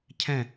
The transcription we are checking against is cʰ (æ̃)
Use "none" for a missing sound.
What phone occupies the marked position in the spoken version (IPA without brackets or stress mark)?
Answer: ɛ̃